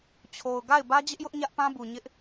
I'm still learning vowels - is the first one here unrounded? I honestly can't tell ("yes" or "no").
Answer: no